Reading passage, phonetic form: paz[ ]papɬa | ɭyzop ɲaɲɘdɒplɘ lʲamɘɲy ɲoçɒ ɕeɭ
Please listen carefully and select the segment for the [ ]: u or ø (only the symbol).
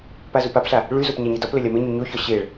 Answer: u